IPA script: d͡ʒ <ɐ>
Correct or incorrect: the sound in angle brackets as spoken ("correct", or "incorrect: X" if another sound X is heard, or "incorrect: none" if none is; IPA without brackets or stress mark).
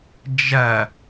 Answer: correct